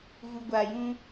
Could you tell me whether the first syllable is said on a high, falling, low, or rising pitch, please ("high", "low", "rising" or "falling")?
low